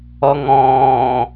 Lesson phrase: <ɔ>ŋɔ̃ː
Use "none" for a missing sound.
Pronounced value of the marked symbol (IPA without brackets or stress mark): ɔ